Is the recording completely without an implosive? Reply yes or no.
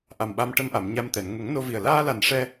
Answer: no